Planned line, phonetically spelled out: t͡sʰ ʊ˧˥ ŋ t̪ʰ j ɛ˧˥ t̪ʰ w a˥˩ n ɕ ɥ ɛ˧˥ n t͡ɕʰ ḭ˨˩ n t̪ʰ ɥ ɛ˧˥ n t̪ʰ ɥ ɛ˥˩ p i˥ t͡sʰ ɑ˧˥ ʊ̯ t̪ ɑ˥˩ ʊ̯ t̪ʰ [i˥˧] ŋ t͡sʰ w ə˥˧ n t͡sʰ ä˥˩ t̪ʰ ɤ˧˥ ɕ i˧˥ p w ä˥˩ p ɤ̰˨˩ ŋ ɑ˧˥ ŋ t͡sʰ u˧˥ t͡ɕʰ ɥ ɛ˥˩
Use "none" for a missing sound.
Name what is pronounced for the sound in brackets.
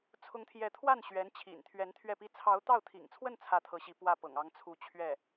ḭ˨˩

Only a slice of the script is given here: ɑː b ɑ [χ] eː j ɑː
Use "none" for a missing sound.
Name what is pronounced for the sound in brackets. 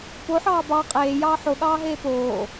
qʼ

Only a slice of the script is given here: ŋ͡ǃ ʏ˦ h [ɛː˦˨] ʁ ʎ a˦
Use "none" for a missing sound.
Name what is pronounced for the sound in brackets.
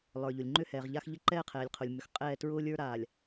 ɛː˨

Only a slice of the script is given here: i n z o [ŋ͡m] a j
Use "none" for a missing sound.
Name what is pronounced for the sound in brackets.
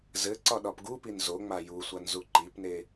ŋ͡m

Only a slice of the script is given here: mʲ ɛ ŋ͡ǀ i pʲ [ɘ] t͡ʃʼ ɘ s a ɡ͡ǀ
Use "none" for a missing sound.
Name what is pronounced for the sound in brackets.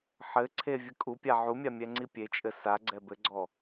e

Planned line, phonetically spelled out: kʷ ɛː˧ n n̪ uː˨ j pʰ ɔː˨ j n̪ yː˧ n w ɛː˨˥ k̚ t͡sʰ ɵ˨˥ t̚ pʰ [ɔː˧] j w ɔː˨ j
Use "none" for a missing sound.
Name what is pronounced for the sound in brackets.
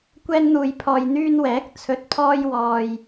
ɔː˧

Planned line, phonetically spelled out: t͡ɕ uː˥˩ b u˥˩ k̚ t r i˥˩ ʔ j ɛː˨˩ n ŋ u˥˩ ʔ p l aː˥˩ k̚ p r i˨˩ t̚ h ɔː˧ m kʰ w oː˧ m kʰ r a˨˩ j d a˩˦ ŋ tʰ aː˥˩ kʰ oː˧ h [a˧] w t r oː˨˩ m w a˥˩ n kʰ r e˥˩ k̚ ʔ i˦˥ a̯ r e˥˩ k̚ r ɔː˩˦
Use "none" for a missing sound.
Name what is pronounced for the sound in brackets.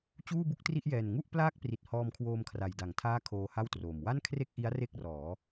a˥˩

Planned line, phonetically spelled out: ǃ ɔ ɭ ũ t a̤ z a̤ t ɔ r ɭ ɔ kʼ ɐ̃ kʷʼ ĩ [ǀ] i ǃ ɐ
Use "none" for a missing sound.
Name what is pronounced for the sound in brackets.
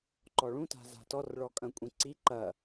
ǀ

